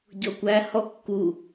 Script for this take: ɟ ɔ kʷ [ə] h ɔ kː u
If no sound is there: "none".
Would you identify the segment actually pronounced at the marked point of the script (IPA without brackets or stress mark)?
æ